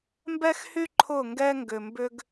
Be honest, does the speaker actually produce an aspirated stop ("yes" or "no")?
yes